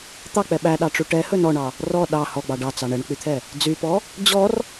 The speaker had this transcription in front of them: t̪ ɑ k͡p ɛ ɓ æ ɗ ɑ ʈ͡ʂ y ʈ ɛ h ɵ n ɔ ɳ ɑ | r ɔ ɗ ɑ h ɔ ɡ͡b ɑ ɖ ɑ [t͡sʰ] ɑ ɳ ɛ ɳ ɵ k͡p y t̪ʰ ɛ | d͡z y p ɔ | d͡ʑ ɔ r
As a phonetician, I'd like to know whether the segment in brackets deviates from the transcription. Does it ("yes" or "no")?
yes